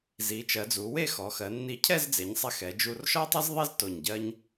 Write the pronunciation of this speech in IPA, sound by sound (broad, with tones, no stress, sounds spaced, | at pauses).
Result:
z i˩˧ t͡ʃ ɜ˩˧ d͡z u˩˧ w e˥˧ x ɔ˩˧ x ɜ˩˧ nː i˧ cʰ ɛ˥˧ z d͡z e˩˧ ɲ sˤ ɛ˧ x ɛ˩˧ d͡ʒ u˧ r ʃ ɔ˥ tˤ ɛ˥ z ðˤ i˥ z t o˧˩ ɲ ɟ ɜ˥ ɲ